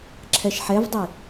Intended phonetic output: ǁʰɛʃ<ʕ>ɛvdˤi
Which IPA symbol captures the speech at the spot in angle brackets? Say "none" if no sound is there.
ħ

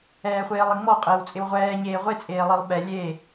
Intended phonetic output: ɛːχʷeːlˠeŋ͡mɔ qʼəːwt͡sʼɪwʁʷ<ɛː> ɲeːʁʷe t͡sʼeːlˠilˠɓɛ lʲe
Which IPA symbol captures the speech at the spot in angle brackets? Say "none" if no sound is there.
ɛː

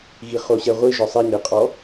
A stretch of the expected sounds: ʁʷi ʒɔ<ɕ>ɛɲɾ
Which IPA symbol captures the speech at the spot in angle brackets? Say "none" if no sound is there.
sˤ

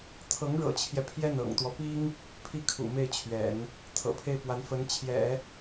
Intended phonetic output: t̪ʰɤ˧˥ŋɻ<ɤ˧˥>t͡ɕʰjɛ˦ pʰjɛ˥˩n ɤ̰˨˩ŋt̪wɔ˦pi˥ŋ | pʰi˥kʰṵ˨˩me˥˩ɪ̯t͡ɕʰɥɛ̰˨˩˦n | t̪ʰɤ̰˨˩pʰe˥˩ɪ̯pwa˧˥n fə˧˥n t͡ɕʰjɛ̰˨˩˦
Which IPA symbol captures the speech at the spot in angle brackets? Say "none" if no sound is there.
ɤ̰˨˩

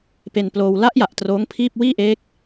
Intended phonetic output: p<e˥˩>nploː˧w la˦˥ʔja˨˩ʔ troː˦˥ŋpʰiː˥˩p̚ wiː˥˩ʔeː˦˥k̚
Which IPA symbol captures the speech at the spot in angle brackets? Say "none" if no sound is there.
e˧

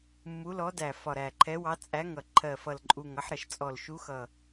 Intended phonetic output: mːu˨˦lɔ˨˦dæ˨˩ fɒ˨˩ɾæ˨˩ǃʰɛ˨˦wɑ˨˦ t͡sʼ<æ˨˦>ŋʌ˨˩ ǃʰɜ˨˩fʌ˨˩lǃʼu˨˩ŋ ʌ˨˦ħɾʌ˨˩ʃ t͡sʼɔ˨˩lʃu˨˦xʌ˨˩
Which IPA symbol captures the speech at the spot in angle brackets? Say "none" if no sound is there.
æ˨˦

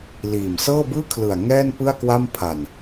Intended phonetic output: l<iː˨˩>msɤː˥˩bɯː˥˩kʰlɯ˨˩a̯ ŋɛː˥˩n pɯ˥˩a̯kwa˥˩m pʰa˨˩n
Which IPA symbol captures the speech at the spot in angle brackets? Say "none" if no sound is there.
iː˨˩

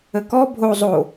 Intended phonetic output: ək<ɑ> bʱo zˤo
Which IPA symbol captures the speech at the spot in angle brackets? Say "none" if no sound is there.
ɔ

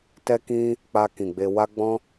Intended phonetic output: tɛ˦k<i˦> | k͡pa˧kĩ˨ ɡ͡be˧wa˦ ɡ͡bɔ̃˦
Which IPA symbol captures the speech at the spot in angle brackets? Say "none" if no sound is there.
ĩ˦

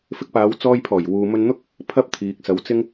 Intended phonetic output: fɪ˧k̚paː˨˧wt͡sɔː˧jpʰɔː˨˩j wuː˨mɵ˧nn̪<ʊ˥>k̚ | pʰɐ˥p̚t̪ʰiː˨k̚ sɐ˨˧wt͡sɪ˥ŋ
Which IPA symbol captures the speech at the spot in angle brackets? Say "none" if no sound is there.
ʊ˥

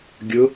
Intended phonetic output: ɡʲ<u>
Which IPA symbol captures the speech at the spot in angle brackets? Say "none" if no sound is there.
ʊ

